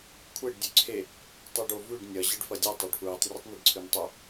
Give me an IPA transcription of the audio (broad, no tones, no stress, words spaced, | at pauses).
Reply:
kʷʰeɖ dʲʉǀʰe | tˤuɖovʉɖ nʲɐ ʑɨɖfɐdʲɨ tˤoɖfɹitˤ rʲɨtˤniɖǀʰʉntˤɵ